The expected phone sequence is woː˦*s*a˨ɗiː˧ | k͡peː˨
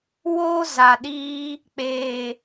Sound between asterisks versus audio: incorrect: z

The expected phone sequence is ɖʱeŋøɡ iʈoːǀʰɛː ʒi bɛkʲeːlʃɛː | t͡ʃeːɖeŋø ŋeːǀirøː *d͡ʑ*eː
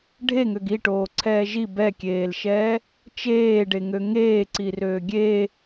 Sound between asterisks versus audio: incorrect: ɡʲ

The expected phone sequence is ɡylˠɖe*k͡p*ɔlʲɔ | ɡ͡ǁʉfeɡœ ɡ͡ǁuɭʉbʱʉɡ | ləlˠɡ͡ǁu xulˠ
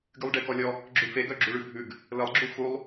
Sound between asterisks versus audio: incorrect: k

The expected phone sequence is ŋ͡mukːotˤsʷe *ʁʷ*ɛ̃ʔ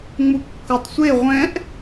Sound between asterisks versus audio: correct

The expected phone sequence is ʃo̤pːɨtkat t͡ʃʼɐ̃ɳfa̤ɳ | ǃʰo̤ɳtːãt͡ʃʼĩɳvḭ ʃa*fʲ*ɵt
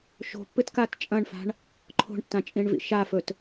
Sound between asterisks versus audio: incorrect: f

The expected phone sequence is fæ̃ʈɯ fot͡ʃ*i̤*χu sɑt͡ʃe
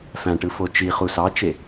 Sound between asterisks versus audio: incorrect: i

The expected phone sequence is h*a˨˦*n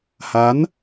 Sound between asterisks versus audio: correct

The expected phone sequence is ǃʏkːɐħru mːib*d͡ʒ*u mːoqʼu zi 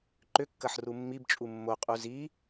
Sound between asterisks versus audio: incorrect: t͡ʃʼ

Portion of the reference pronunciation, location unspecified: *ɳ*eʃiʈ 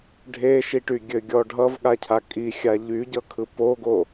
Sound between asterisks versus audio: incorrect: ɖʱ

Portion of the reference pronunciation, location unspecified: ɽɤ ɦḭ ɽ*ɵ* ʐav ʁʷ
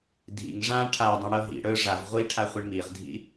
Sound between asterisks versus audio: correct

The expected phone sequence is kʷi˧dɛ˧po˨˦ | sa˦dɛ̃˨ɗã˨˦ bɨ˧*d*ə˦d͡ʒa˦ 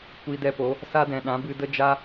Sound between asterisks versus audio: correct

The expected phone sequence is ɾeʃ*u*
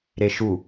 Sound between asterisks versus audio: correct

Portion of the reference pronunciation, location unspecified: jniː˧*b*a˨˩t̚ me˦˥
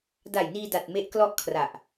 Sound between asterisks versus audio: incorrect: d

